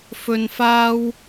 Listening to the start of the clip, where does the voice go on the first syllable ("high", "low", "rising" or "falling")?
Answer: low